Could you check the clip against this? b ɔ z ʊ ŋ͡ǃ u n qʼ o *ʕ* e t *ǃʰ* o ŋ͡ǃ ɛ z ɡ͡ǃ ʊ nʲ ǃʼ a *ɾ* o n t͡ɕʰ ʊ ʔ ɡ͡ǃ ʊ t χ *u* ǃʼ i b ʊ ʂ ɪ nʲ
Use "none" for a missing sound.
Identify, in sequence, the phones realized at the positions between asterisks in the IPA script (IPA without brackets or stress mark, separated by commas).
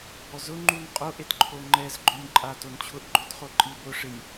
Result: ʔ, ǃʰ, t, o